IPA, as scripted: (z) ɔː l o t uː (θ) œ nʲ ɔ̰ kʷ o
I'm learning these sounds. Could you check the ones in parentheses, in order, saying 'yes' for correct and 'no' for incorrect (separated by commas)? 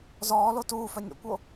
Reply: yes, no